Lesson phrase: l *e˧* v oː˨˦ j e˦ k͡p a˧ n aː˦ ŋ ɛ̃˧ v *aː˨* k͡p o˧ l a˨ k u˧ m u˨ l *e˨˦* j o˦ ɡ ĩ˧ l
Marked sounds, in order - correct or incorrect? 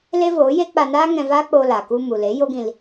incorrect: e˦, incorrect: aː˦, correct

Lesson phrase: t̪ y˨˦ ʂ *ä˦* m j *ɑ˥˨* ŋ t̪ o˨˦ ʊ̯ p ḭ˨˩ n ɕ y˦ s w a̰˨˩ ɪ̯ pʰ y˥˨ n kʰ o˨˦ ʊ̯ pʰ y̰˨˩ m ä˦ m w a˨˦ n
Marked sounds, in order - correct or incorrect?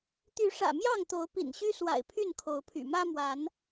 incorrect: ä̰˨˩, correct

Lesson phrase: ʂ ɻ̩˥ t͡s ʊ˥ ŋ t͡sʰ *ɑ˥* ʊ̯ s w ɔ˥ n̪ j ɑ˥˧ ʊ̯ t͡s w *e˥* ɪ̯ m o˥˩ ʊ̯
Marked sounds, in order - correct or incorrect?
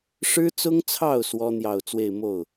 incorrect: ɑ˥˩, incorrect: e˥˧

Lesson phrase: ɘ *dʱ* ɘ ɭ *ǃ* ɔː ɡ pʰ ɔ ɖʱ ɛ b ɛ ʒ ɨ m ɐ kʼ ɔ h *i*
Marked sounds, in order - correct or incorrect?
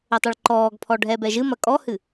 incorrect: tˤ, correct, incorrect: ɨ

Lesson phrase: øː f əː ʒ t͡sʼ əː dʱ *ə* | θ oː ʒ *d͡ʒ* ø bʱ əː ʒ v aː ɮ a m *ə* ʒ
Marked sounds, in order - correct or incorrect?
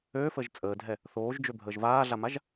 incorrect: ɛ, correct, incorrect: a

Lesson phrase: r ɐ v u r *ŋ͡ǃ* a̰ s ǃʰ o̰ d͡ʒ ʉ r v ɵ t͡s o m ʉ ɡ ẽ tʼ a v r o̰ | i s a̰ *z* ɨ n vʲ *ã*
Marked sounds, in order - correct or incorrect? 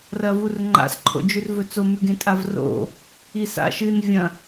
correct, incorrect: ʃ, incorrect: ɐ̃

